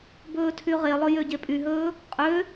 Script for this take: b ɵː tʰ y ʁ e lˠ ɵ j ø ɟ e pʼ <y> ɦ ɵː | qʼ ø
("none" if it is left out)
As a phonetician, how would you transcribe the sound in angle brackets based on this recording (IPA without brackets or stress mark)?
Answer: y